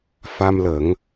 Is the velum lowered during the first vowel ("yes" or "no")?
no